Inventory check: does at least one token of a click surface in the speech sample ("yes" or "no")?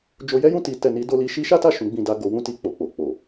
no